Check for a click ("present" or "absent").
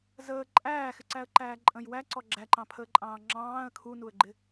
present